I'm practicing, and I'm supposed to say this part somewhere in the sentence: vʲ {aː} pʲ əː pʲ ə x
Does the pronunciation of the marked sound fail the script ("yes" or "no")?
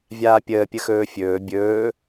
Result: no